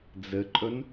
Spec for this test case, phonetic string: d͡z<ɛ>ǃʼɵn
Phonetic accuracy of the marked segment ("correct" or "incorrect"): incorrect